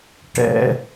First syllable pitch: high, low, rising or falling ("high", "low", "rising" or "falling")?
low